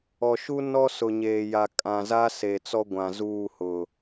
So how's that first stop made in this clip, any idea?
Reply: ejective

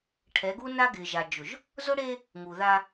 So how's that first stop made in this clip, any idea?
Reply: aspirated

